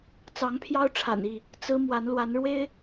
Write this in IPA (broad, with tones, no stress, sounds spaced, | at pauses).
t͡s ɑ˨˦ ŋ pʰ j ɑ˦ ʊ̯ ʈ͡ʂʰ a̰˨˩ n i˥˨ | t͡s ɹ̩˦ m w a˨˦ n l w a˨˦ n ɻ w e˦ ɪ̯